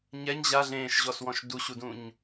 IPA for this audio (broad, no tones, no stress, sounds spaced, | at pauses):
ɲ ɛ ɲ ʑ a ɮ ẽː ʃ ʑ ɔ s w ɔ̃ ʃ d u ɕ u d ũ ɲ